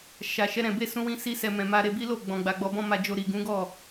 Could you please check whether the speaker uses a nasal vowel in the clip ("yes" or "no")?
yes